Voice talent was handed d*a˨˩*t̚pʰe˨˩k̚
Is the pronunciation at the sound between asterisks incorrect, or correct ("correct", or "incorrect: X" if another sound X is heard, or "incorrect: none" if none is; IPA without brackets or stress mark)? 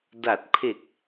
correct